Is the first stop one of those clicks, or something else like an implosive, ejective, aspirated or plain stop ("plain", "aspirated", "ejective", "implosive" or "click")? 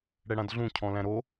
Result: plain